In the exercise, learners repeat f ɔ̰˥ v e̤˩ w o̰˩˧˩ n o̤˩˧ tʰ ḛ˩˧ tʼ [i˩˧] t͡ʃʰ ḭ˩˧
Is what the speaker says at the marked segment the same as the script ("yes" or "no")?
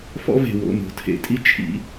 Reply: no